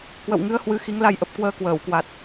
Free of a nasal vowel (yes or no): yes